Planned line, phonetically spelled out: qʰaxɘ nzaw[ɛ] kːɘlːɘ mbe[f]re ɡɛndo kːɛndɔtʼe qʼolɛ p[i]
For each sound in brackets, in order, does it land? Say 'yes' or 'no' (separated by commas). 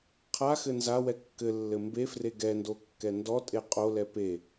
yes, yes, no